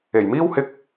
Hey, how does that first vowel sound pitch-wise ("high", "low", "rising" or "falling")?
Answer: low